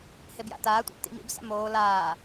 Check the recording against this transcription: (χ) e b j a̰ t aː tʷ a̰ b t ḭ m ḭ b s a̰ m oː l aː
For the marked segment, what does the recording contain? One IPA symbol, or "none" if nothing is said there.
h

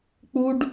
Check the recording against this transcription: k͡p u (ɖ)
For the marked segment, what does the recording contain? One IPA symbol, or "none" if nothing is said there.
ɖ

